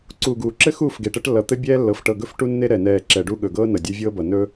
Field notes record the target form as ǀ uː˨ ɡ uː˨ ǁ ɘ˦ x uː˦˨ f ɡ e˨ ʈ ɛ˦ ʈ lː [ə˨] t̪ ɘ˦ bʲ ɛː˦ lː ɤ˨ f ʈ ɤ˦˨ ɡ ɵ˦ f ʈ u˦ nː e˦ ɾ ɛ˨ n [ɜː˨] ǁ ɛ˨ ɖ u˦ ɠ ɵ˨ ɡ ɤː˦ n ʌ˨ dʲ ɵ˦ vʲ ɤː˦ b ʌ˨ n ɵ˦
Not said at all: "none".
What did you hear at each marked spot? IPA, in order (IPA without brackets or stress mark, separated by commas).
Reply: ʌ˨, ɛː˨